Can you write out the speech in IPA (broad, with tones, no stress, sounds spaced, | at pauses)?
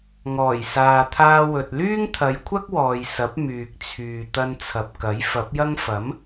ŋ ɔː˨˩ j s aː˨ t̪ʰ aː˧ w ɵ˨ t̚ l yː˥ ŋ t̪ʰ ɐ˨˧ j kʷʰ ɐ˥ k̚ w ɔː˨ j s ɐ˨˥ p̚ m yː˨ k̚ t͡sʰ yː˨ t̪ ɐ˧ n t͡sʰ ɐ˨ p̚ k ɐ˨˥ j f ɐ˨˥ p̚ j ɐ˥ ŋ f ɐ˨˥ m